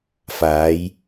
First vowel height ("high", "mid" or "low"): low